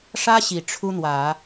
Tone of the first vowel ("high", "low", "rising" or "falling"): high